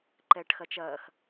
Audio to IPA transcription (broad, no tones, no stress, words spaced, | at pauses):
ǃɛːʈxɐt͡ʃɐːx